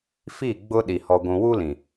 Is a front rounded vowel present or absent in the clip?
absent